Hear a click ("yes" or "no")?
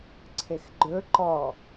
yes